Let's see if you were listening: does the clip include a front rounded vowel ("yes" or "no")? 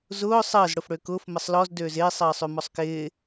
yes